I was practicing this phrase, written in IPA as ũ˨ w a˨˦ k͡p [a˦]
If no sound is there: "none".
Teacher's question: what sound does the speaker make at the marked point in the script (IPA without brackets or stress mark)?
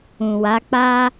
a˦